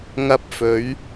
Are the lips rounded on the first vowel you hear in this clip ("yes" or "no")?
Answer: no